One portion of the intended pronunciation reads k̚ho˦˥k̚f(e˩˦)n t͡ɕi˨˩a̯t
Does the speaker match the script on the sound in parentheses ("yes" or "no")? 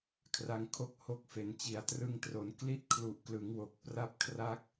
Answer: yes